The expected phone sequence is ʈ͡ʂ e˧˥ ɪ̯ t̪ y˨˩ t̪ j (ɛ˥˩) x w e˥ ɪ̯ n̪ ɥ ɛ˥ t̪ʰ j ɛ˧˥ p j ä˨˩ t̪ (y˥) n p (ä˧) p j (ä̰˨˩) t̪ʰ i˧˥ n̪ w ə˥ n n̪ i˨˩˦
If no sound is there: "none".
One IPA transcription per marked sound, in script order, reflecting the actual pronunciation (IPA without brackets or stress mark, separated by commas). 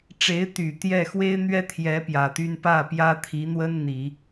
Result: ɛ˥˩, y˥, ä˥˩, ä˥